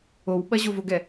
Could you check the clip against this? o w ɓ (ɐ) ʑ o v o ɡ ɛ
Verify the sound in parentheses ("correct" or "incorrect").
correct